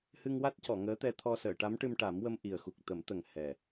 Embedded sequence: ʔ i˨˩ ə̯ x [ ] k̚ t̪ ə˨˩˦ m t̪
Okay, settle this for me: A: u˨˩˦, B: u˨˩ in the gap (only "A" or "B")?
B